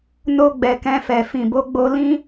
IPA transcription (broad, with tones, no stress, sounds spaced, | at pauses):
n o˧ ɡ͡b ɛ˨ k ɛ̃˧ f ɛ˨ f ĩ˨ b o˨˦ ɡ͡b o˧ l ĩ˦